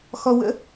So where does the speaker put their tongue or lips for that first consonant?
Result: velum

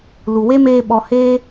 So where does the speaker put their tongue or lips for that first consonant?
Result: tongue tip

